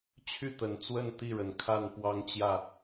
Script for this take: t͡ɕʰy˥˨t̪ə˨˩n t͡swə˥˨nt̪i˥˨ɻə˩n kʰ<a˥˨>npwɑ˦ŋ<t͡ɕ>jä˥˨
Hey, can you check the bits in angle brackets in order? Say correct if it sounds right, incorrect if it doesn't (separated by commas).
correct, correct